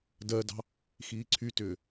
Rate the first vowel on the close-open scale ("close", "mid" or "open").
mid